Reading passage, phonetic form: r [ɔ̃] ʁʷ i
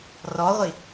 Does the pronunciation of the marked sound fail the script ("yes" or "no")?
yes